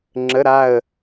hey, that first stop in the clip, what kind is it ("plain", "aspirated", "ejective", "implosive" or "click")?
click